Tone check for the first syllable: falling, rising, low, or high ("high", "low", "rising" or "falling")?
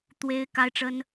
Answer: high